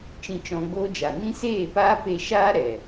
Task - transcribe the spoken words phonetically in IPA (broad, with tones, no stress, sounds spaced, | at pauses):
t͡ʃ ĩ˧ t͡ʃ ɔ̃˧ ɡ͡b oː˦ d͡ʒ a˨ n ĩ˦ s eː˦˨ p aː˦ p e˧ ʃ aː˦ ɾ ɛ˨